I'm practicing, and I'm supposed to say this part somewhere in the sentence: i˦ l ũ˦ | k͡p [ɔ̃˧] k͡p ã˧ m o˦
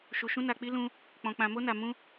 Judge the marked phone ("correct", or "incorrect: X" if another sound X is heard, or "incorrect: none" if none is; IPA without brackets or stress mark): correct